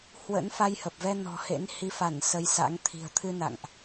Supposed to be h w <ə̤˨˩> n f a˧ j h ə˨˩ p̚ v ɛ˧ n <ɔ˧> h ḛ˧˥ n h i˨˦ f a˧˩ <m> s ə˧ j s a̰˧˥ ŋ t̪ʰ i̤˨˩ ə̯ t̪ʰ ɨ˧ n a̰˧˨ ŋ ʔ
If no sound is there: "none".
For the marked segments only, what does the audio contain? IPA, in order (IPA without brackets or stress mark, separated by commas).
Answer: ə̰˧˥, ɔ̤˨˩, n